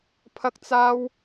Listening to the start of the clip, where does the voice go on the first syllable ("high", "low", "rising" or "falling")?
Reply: high